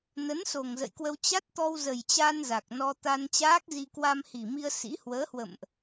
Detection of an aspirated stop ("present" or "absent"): absent